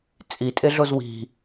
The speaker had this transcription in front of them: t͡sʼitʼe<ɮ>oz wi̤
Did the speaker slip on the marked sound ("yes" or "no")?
no